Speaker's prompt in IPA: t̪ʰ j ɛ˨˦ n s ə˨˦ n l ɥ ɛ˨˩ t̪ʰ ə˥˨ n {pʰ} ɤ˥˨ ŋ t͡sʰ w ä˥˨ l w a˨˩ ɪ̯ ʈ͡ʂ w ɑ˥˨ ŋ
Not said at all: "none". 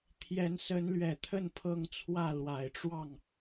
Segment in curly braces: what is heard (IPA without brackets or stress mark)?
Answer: pʰ